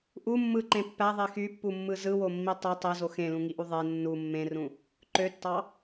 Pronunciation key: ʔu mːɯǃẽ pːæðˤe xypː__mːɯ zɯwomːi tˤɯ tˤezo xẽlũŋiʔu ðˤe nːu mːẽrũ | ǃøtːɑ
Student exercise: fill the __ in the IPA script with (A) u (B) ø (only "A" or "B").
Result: A